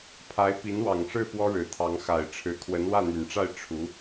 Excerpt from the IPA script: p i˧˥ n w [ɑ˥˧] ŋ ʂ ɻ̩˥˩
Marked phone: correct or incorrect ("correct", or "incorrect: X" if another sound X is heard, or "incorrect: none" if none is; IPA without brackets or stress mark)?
incorrect: ɑ˨˩